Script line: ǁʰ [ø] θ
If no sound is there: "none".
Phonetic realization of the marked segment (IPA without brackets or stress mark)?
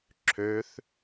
ø